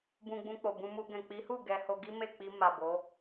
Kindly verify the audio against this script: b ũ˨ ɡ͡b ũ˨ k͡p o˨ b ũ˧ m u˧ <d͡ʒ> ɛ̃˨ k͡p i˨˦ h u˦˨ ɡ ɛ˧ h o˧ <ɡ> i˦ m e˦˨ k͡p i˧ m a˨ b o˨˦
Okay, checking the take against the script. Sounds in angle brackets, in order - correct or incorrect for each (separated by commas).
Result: incorrect, correct